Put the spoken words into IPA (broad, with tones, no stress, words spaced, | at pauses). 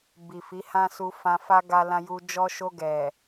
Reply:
bi˨fi˨˦hã˦su˧ fã˧fa˦ ɡa˧lã˧ju˧ d͡ʒɔ˧ʃo˧ɡɛ˨